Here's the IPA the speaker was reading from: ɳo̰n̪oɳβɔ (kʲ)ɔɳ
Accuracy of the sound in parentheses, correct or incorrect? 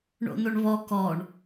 incorrect